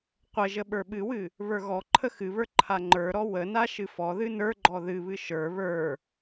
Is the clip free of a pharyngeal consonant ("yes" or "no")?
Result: yes